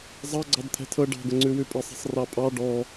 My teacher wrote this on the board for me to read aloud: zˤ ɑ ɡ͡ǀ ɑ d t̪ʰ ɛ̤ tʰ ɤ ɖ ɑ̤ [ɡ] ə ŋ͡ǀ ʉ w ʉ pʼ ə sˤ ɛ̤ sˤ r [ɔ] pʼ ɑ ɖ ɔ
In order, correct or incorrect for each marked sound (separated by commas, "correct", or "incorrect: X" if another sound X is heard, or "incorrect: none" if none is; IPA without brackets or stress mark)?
correct, incorrect: ɑ